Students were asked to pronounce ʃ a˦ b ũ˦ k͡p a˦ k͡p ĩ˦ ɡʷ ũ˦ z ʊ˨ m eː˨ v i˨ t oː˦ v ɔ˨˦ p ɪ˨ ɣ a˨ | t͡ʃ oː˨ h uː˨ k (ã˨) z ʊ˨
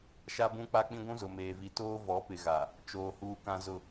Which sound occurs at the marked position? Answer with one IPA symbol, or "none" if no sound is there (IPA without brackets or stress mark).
ã˨